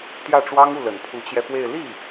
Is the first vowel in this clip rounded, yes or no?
no